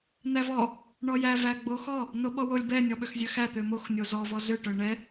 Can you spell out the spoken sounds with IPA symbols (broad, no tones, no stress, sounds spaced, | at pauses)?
n̪ æ v ɔ | ɳ ɔ j æ v æ ɡ͡b o x ɔ | n o ɓ ɔ w o lʲ b ɛ nʲ ɔ ɓ ø x zʲ ø x æ t̪ ø m o x nʲ o z ɔ v ɔ z ø ʈ œ ɳ ɛ